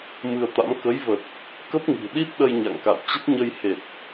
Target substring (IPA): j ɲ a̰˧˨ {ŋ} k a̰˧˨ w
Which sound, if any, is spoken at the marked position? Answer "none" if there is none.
ŋ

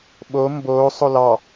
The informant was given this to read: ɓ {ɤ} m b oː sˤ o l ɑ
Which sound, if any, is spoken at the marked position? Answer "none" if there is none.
o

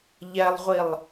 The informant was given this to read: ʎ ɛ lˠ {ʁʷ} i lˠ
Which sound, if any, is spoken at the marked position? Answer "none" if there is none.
ʁʷ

